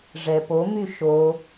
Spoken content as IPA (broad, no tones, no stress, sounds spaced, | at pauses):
ʐ ɛ p o m y ʃ o